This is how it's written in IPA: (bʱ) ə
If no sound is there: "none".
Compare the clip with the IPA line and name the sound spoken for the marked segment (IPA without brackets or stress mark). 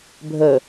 bʱ